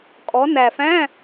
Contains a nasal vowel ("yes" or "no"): yes